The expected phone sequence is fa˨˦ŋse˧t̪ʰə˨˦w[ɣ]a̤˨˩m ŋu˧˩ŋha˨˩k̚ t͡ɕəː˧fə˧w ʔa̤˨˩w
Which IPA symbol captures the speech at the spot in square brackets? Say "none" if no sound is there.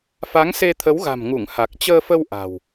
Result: ɣ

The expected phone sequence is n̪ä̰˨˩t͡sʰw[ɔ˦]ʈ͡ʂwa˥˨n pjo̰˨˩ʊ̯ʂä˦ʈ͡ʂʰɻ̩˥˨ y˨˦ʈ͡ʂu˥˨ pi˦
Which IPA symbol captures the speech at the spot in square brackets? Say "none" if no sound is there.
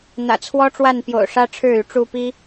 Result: ɔ˦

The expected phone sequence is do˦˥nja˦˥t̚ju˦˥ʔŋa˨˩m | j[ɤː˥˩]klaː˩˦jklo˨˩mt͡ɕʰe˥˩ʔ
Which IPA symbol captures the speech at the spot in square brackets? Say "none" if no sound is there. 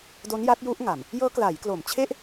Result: ɤː˦˥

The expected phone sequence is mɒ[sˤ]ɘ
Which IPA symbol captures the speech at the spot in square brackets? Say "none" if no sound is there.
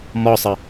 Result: sˤ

